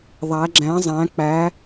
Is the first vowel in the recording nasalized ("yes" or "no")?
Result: no